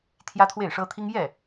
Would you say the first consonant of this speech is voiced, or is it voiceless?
voiceless